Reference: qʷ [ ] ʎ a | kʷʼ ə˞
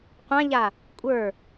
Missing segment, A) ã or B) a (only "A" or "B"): A